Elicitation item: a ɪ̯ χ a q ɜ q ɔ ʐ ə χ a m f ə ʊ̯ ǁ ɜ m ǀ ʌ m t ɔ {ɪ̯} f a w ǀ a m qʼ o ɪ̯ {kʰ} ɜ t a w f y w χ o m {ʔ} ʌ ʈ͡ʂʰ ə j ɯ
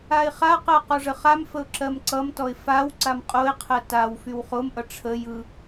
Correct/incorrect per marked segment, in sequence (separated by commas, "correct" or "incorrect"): correct, incorrect, correct